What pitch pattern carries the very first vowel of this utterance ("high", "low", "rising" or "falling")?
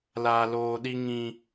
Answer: low